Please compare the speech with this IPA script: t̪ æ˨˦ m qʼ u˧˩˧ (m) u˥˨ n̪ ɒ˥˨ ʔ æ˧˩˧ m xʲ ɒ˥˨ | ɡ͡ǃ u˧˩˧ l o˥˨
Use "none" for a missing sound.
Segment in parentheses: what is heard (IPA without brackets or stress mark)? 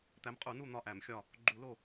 n